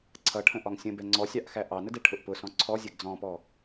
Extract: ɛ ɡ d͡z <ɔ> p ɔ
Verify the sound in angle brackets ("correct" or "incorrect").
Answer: incorrect